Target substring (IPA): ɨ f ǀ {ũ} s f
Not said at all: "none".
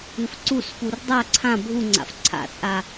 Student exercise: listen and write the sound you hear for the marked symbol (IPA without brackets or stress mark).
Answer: u